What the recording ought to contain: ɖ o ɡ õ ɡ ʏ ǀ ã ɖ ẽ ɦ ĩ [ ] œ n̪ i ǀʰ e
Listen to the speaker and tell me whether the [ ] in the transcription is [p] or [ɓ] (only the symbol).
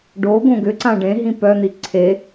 p